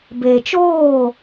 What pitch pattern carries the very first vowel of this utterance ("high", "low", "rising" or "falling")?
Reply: low